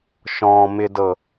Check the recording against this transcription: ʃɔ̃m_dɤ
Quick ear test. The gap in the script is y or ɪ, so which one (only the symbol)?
ɪ